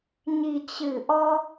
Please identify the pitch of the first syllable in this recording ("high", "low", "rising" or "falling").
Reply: low